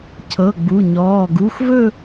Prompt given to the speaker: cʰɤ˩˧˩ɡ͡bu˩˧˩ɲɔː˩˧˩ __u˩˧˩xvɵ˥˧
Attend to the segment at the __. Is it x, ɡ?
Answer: ɡ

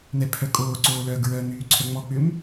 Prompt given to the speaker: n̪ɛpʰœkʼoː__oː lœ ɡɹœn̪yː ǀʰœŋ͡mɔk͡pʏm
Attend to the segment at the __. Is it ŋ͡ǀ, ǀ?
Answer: ǀ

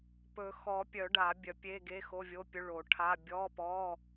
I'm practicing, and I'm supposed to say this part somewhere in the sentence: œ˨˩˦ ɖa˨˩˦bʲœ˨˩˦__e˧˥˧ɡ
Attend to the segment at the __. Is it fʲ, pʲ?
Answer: pʲ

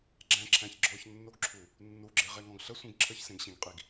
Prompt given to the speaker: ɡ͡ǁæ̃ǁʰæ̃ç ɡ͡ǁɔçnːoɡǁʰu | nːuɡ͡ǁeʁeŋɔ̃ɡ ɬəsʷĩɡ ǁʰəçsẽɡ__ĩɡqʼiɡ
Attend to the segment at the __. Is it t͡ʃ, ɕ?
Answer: ɕ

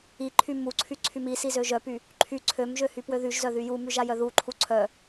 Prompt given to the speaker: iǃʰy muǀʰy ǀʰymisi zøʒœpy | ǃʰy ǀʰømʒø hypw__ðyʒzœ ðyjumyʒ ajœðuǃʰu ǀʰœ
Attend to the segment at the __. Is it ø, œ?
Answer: ø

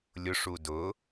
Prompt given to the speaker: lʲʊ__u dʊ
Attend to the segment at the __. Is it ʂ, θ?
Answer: ʂ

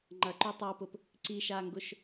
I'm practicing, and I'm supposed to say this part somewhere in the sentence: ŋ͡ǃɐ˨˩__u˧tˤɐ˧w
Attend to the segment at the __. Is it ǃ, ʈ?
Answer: ǃ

